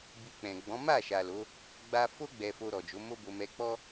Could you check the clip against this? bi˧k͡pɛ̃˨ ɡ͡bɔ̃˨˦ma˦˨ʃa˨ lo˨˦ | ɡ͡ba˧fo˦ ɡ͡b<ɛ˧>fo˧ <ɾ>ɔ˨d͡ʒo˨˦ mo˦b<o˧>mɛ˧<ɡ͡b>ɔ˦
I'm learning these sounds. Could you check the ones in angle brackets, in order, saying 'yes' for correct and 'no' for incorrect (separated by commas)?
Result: yes, yes, yes, no